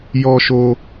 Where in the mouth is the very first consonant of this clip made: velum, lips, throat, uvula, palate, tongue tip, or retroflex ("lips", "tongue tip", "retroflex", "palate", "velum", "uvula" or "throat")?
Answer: palate